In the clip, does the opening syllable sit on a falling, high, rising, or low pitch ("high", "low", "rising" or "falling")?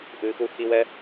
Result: low